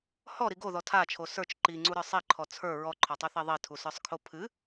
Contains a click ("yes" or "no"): yes